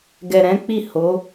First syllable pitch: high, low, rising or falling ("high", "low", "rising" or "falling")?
low